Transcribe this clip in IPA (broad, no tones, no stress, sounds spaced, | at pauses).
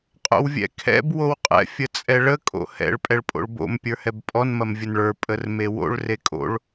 qʼ o̰ w vʲ ɛ̰ kʰ ɛ̰ b w o w qʼ ɛ̰ fʲ ə t͡sʼ ɛ ɭ ə kʼ o̰ h ɛ̰ ɭ pʼ ɛ ɭ pʼ o̰ ɭ b o̰ m pʲ ə˞ h ɛ b pʼ ɔ n m ɐ m vʲ ə n ɭ ə˞ pʼ ə r m e w o̰ ɭ r e kʼ o̰ ɭ